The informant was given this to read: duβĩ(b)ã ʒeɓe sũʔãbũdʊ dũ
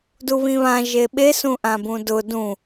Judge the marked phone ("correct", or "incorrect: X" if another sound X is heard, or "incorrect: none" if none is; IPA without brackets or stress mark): incorrect: β